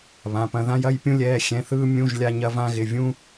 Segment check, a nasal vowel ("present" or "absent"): present